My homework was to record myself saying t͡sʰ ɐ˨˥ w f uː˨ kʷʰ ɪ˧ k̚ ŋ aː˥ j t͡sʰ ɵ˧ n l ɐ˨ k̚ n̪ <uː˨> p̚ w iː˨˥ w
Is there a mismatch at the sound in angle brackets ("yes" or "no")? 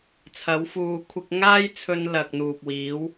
no